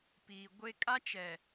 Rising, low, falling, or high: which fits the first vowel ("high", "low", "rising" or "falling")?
low